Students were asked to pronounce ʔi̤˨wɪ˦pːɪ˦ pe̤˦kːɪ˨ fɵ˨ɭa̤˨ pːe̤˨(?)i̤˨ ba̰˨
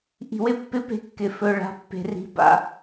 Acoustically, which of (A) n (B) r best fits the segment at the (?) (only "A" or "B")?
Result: B